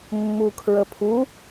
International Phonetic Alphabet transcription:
mː u kʰ ɹ ə pʰ u

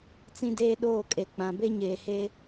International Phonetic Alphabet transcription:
t͡s ĩ˦ d eː˦ ɗ oː˦˨ kʼ e˨ k͡p ã˨ b e˦ ɲ eː˨ h eː˦

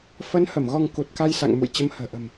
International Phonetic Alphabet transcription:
f ə˨˦ n h ə˧˩ m ɣ ɔ˧ ŋ k u˨˩ t̚ k a˧ j s a̰˧˨ ŋ m ṵ˧˨ j t͡ɕ ə˨˦ m h ə̤ː˨˩ ʔ ə̤˨˩ m

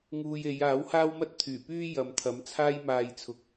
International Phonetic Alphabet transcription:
ŋ uː˧ j e˨˧ j aː˨˥ w h aː˥ w m ɐ˥ t̚ t̪ʰ yː˨˩ p yː˥ j ɐ˨ m t̪ʰ ɐ˨˥ m t͡sʰ aː˥ j m aː˧ j t͡sʰ ʊ˨ k̚

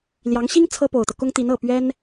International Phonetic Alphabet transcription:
l j ɑ˧˥ ŋ ɕ i˥ ŋ t͡sʰ ɤ˥ p o˨˩ ʊ̯ t̪ ɤ˦ k ʊ˥ ŋ t̪ i˧˥ n ɤ˨˩ p ɥ ɛ˥ n

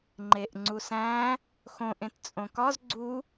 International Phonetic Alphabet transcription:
ŋ͡ǃ e ʔ ŋ͡ǀ u s æ̃ | x õ ʔ ẽ t t͡sʼ õ k ɒ z ɡ͡ǀ u

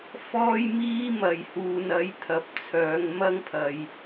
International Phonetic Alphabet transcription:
f ɔː˥ j m iː˥ m ɐ˨ j h uː˨ n ɐ˨˥ j t̪ʰ ɐ˨ p̚ t͡sʰ œː˨˧ ŋ m ɐ˥ ŋ pʰ ɐ˨ j

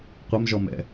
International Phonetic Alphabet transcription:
qʷ ɘ m ʒ ɔ m ɛ̰

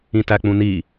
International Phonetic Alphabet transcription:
ĩ t æ k͡p ũ n i

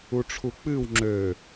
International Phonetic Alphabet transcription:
u ʈ͡ʂʰ u k͡p ɨ w ŋ͡ǁ ø

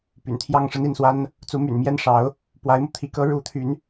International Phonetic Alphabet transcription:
p y̰˨˩ n t̪ʰ j ɑ˥˩ ŋ ʂ ə˥ n i˥˩ n s w a˥ n | t͡s u˧˥ m y̰˨˩ n m j ɛ˥˩ n ʂ ɑ˧˥ ʊ̯ | p w a˧˥ ɪ̯ m u˧ t̪ʰ i˧˥ k ɤ˧˥ ɻ u˧˥ t̪ʰ y˧˥ n

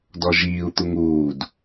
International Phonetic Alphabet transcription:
d ɔ ʒ iː u̯ t̪ u ŋ uː d

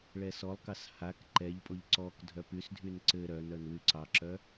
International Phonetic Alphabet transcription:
ɭ ɛ s ɔ lˠ k ɑ s h a k ǃ ɛ ʎ pʼ o ʎ ǀ ɔ k dʱ œ p y s dʱ y n ǀ ɘ ɾ œ n œ n w y ǀ ɑ ǁ œ

